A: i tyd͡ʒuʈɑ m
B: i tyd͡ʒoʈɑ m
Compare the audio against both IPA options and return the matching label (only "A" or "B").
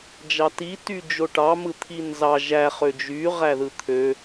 B